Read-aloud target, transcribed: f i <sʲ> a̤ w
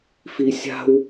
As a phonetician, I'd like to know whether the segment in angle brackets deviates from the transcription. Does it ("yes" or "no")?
no